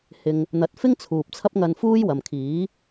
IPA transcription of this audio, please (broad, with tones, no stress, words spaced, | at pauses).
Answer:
hɪ˨ŋ | n̪ɐ˨˥t̚fɪ˥ŋt͡sʰuː˨p̚ t͡sʰɐ˥p̚ŋɐ˧nfuː˥j wɐ˨mkʰiː˨˥